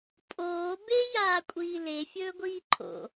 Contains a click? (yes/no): yes